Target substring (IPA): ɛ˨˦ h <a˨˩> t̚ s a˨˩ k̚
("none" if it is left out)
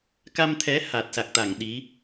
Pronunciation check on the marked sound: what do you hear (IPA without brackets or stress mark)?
aː˨˩